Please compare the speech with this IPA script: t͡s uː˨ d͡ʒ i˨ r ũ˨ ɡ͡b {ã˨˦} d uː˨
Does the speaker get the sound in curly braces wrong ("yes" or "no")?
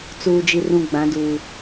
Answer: no